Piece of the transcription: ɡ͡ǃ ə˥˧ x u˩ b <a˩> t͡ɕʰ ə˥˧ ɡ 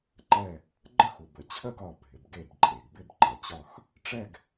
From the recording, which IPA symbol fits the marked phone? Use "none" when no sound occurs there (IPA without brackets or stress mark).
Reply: ə˩